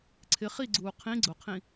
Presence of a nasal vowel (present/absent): present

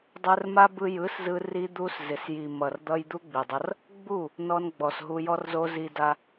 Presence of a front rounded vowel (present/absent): absent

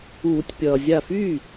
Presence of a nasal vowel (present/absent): absent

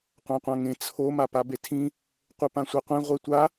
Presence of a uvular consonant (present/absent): present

